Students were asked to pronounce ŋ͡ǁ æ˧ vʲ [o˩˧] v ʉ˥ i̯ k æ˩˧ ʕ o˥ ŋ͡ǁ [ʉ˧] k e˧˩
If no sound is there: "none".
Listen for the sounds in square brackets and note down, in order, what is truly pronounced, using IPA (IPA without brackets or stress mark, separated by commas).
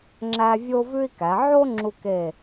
o˥, u˧